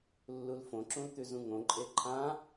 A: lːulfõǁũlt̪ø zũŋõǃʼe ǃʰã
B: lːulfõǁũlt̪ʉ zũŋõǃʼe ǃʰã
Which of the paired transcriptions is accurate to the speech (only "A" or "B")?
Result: B